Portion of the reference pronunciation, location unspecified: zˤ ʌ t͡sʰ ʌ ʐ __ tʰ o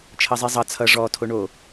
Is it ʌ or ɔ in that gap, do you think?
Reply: ɔ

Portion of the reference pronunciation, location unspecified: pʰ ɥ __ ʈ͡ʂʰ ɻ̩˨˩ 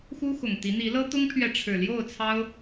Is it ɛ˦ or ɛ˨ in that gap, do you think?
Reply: ɛ˨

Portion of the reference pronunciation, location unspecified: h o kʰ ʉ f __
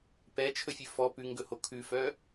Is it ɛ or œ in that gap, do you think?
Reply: œ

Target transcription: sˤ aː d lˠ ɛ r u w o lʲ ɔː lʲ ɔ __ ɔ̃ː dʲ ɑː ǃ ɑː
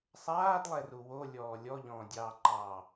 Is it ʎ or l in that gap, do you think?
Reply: ʎ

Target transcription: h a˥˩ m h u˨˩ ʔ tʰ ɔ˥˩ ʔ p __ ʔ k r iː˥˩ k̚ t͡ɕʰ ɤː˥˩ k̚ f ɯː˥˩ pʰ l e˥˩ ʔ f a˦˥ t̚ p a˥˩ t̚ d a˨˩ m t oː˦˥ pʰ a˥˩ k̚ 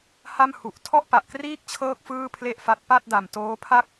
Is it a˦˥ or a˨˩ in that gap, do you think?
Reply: a˨˩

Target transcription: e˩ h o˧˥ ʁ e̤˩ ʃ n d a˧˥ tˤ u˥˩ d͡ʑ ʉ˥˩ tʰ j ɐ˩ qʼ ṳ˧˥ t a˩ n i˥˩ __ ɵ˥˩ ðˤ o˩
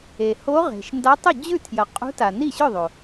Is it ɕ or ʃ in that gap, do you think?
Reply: ɕ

